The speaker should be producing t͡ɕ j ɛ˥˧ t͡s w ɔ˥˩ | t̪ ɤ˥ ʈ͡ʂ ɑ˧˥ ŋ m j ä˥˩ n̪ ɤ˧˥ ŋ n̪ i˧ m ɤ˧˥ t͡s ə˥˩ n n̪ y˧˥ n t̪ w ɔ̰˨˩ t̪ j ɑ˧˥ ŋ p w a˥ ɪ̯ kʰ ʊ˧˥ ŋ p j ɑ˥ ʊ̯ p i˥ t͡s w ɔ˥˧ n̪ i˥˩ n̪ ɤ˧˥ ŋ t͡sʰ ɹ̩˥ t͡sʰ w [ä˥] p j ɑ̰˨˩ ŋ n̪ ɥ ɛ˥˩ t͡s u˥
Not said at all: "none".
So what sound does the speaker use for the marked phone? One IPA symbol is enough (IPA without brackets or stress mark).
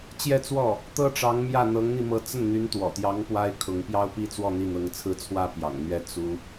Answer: ä˥